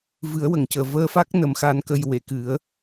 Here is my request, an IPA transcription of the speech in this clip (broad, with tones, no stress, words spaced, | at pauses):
vɨ˨˩˦ə̯wə˨˩˨ŋcəː˨˩ vəː˧fa˦˥k̚ nə˨˩˦m xa˧˥nkə˧j we˨˩˨kɨ˨˩˦ə̯